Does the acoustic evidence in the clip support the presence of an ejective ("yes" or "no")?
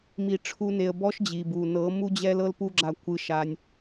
no